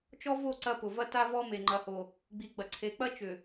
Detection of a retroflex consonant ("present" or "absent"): absent